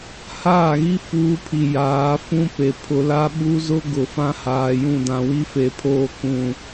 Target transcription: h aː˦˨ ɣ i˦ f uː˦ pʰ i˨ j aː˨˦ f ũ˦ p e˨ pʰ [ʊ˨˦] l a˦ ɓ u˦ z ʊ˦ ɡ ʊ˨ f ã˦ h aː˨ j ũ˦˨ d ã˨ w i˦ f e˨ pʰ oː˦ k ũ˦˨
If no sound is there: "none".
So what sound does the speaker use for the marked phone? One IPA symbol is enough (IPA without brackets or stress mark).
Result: ʊ˨